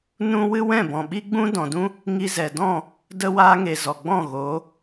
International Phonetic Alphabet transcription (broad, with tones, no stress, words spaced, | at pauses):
nũ˦ wɨ˦ wɛ̃˦˨bɔ̃˨ ɓi˦ɡ͡bũ˦dɔ̃˨dũ˦ | ŋi˧zɛ˨dɔ̃˦˨ | də˧waː˧ŋe˨ zɔ˨ɡ͡bɔ̃˦˨ɣoː˨˦